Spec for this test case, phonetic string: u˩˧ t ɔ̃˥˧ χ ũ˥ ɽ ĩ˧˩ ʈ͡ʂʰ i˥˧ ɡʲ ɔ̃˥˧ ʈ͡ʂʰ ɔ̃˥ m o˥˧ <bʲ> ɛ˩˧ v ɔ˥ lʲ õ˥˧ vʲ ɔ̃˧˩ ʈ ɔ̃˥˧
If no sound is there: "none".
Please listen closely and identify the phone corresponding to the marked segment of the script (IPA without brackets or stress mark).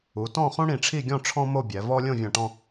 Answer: bʲ